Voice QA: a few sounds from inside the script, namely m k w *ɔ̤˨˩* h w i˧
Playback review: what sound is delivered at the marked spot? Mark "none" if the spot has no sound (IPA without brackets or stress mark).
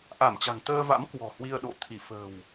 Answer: ɔ̤˨˩